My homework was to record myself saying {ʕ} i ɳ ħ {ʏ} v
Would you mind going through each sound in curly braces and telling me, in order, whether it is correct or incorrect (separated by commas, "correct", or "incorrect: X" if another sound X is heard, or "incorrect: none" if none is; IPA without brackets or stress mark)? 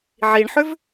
correct, correct